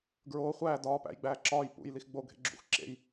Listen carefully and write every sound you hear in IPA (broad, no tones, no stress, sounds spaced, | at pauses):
ɡ ɹ oː χʷ æː d ɒː p æ̰ j ɡ͡b æː ǁ ɒː j p ṵ j l i x ɡ͡b o ɡʱ ḛ ɡ͡ǁ ṵ x ǁ ḛ j